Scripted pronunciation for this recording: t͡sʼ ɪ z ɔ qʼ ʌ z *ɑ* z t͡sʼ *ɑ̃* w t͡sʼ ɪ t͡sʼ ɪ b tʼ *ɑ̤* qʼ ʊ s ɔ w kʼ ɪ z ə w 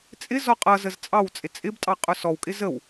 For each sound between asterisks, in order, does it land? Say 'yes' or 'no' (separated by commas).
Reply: no, no, no